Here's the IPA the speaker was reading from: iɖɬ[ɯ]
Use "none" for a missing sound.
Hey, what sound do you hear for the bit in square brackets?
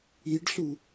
u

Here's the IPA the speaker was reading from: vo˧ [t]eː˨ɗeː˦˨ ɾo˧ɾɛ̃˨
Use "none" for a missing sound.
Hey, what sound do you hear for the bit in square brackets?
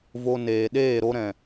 n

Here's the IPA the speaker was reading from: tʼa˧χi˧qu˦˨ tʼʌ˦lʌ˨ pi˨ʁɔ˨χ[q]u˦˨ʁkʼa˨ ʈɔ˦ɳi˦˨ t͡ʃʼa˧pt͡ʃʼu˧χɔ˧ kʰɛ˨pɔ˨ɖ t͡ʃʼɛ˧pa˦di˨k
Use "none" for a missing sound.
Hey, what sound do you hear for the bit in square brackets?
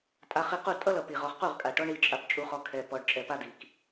q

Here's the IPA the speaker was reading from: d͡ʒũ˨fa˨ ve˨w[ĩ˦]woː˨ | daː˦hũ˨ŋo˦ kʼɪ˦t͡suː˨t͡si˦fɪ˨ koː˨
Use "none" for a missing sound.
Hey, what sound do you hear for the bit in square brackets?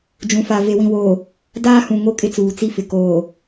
ĩ˨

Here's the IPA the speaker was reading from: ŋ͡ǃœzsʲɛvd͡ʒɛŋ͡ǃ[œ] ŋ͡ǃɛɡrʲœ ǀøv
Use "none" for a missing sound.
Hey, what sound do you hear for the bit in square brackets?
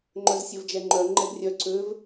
œ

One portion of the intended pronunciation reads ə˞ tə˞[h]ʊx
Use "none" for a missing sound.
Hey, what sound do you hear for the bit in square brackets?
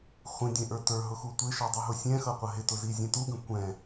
ɦ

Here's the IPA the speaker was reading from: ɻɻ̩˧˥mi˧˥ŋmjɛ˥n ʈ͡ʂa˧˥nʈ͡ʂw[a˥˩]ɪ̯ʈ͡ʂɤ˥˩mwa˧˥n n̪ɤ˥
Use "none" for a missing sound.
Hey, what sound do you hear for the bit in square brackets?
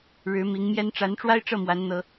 a˥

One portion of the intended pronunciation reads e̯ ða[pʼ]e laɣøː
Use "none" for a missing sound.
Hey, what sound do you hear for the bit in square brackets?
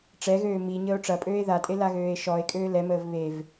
tʼ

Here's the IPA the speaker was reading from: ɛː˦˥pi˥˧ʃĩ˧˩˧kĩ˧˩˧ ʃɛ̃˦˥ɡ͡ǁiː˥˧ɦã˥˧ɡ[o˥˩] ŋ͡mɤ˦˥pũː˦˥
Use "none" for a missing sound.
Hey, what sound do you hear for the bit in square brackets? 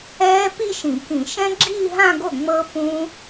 o˥˩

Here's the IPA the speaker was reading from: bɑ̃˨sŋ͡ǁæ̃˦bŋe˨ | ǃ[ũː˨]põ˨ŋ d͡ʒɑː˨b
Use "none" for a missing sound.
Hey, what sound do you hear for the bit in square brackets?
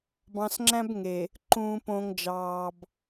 ũː˨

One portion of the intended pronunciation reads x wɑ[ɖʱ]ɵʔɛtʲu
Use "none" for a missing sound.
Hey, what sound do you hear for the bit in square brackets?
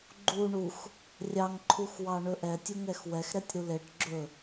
ɳ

